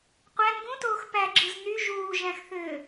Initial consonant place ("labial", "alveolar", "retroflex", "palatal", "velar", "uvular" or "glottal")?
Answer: uvular